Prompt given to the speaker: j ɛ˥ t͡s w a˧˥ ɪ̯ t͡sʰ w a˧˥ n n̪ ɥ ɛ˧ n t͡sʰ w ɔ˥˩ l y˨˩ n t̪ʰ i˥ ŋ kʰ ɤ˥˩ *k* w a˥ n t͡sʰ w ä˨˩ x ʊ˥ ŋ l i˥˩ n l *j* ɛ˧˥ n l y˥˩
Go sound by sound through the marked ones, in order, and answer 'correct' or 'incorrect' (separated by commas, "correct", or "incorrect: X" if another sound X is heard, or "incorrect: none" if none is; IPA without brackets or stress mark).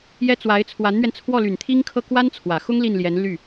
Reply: correct, correct